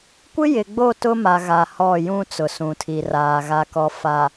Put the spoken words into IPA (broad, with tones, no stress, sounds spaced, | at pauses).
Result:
kʷ ɪ˦ j ɪ˨ ɡ͡b o˦˨ t ʊ˦ m a˨ ɣ a˨ h ɔ˦˨ j ũ˦ t͡s ʊ˨ s ũ˨ tʰ i˨ r aː˨ ɣ a˨ k ɔ˨ f a˨